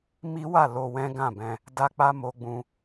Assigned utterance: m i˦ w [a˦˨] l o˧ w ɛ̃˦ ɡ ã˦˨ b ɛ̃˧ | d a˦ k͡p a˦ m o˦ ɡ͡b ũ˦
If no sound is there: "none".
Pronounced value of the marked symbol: a˦˨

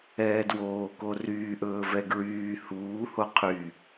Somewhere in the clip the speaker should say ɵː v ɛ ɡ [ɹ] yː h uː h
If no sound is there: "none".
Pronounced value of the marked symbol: ɹ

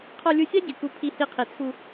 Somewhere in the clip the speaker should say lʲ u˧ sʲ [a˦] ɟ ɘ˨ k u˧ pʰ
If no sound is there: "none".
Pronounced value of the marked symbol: a˦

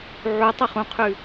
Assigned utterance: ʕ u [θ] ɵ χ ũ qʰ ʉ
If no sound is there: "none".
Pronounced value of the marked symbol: tˤ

